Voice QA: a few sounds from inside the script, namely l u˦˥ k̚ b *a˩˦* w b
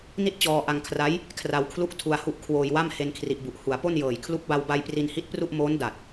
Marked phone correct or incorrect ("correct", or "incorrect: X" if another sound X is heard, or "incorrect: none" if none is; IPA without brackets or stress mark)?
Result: incorrect: a˧